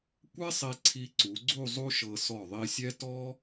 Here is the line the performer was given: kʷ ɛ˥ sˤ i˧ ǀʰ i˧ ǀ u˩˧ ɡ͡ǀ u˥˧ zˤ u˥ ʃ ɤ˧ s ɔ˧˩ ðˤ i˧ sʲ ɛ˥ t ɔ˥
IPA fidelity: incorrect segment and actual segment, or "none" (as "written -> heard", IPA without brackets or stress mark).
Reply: none